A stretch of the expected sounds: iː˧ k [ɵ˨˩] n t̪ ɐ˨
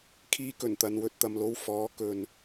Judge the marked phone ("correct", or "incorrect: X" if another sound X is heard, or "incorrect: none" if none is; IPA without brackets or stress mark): correct